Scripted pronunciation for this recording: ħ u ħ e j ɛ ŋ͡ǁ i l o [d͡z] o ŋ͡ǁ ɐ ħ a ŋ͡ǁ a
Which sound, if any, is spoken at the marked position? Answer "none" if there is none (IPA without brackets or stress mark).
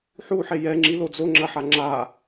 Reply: d͡z